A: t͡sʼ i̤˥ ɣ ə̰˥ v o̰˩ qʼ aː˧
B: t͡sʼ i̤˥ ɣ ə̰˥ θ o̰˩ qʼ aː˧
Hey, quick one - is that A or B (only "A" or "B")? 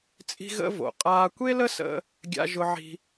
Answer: A